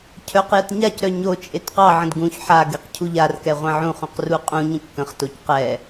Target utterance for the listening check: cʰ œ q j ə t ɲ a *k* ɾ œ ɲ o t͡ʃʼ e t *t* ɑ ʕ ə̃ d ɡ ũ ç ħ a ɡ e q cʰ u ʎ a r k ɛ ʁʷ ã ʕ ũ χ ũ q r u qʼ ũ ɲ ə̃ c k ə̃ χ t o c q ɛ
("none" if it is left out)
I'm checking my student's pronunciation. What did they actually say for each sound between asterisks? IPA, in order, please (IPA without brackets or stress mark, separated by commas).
c, q